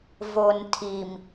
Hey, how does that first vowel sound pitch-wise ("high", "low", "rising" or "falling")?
low